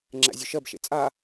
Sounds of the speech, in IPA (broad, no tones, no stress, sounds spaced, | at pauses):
ŋ͡ǁ æ̰ zʲ ɵ ʃ ɜ b ʃ ḛ t͡sʼ a